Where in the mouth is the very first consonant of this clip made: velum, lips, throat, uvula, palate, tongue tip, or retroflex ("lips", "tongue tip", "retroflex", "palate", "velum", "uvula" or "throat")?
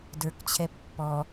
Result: tongue tip